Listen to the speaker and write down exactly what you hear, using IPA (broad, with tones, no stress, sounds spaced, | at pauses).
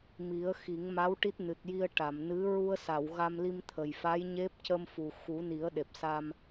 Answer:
m i˨˩˦ ə̯ x i˨˩˦ ŋ m a˧˥ w ʈ i˦˥ t̚ n ɨ˨˩ t̚ j i˧ ə̯ ʈ a˨˩˨ m n ɨ˧˥ ɹ u˧ ə̯ s a˨˩˨ w ɣ a˧ m l i˧ m t̪ʰ ə˨˩ j f a˧˥ j ɲ e˦˥ p̚ c ə˧ m f u˨˩ x u˨˩˦ n i˨˩˦ ə̯ ɗ e˨˩ p̚ s a˧ m